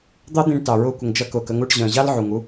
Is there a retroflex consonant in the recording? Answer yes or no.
yes